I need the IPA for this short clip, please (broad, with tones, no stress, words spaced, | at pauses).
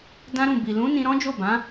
dã˦ɾũ˦˨ bi˨lũ˨˦nĩ˧ ɾɔ̃˦d͡ʒo˦˨bã˨˦